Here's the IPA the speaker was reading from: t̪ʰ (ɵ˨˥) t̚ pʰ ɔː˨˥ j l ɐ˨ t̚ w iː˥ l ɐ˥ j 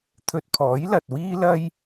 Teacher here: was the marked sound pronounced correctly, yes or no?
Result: no